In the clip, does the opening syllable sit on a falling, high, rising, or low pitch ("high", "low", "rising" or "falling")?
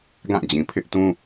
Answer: falling